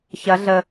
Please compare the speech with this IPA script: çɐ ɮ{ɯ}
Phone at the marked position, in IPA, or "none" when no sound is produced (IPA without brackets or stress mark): ə